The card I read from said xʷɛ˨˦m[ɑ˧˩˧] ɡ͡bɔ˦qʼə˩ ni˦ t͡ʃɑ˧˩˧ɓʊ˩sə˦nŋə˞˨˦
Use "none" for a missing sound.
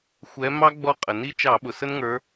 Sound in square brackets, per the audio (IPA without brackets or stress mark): ɑ˦